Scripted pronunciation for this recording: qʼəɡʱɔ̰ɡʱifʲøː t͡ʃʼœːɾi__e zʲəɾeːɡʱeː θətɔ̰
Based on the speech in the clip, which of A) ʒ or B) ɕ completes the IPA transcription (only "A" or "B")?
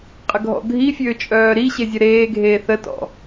B